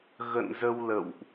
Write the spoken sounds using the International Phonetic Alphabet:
ɣ ə̰˧˨ n z ə˧ w l ə̰˧˨ w ʔ

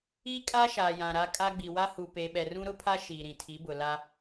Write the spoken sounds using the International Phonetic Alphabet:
i˦ kʼ a˦ ʃ aː˨ j ã˨ ɾ a˦ kʼ a˦ ɡ͡b i˨ w a˦ h u˨ p e˨ ɓ ɛ˨ r ũ˦ ɾ ʊ˦ pʰ a˦ ʃ iː˨ ɾ ĩ˨ tʰ i˨˦ b ʊ˨ l a˦

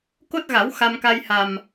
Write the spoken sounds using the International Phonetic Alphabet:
k o˦˥ t̚ ɣ a˨˩˦ w x a˧ m k a˧ j h a˨˩ m

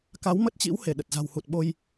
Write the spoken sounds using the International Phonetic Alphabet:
k a˨˦ w m ə˦˥ t̚ t͡ɕ ḭ˧˥ w h e˧˩ ɗ ə˨˩ t̚ z a̤˨˩ w h u˨˩ t̚ ɓ o˧ j

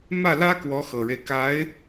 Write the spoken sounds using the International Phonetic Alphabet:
m ä˥˩ l ä˥ k w ɔ˧˥ x ɤ˨˩ ɻ e˦ ɪ̯ k a˧˥ ɪ̯

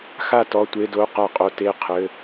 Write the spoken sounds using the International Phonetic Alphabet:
x a˥˨ t ɔ˧˥˧ tʷ e˧˥˧ d o˧˥˧ q a˥˨ qʼ o˥˨ t e˥˨ qʰ ɘ˧˥˧

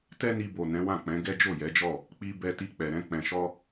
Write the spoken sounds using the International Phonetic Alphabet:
t ɛ˦ n i˧ b o˨ n ɛ̃˨˦ w ã˦˨ k͡p ɛ̃˨˦ ɡ ɛ˦ d͡ʒ o˦˨ j ɛ˨˦ d͡ʒ ɔ˦˨ | k͡p i˧ b ɛ˧ t i˧ k͡p ɛ˨ ɾ ɛ̃˧ k͡p ɛ̃˨ ʃ ɔ˧

